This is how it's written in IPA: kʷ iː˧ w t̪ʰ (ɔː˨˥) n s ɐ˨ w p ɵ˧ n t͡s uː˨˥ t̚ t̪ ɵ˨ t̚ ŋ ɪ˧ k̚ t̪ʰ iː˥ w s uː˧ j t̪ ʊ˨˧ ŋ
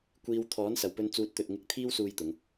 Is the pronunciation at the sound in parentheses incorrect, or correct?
correct